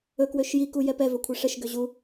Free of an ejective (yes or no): yes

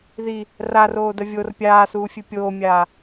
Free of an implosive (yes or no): yes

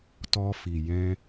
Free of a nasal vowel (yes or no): no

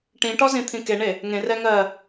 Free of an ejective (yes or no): yes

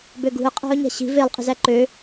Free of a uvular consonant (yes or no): no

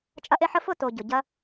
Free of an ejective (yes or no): no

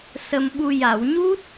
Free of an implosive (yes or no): no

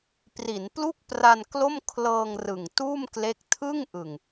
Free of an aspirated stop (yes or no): no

